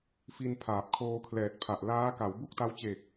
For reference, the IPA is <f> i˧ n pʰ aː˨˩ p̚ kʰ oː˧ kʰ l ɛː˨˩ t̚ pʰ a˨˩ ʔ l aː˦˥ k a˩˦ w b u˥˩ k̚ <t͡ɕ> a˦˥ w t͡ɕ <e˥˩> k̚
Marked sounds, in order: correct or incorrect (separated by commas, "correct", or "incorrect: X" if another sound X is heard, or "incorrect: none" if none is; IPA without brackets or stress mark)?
correct, incorrect: t, incorrect: e˨˩